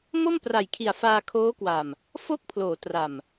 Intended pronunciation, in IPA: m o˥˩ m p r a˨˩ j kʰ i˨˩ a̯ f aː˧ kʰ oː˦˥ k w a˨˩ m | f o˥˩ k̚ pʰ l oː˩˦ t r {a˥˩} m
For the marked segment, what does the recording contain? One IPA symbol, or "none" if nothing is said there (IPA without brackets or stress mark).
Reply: a˨˩